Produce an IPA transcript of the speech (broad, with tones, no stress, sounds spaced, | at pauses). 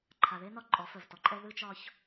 ǃʰ a˨ ð e˦ n ɒ˦˨ ǃʼ ɔ˨˦ f œ˨ v t ɔ˨ ǃʼ ɛ˦ ð ɯ˦ t͡ʃ ɒ˦ ç